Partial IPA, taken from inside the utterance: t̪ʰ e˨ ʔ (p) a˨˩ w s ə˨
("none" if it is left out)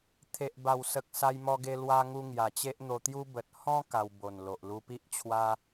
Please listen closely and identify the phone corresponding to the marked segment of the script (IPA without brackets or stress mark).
b